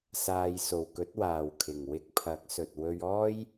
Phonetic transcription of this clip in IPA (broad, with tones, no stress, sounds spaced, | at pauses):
s aː˨ j s o˨˩ w k ɵ˨˥ t̚ w aː˨˩ w kʰ ɪ˨˩ ŋ w ɪ˧ k̚ pʰ ɐ˨˥ k̚ s ɵ˨ t̚ w ɵ˧ ɥ ɔː˥ j